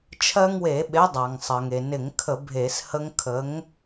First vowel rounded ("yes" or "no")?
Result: no